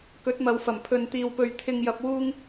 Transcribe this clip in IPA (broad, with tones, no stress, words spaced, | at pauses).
kɵ˨˥t̚mɐ˨wfɐ˨˩m pʰɵ˨n t̪iː˨wpɵ˨ɥ t̪ʰɪ˨ŋjɐ˨p̚ wuː˧ŋ